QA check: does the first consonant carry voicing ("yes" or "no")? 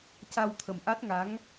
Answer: no